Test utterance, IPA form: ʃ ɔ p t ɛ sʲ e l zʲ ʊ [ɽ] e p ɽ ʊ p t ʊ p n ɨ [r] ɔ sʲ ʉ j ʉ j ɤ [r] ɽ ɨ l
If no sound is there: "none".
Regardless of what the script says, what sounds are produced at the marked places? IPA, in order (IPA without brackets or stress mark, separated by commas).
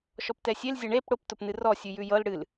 ɳ, r, l